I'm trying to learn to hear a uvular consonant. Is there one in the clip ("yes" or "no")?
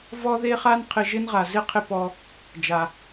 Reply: yes